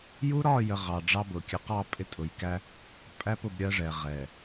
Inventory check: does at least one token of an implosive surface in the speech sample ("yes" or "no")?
no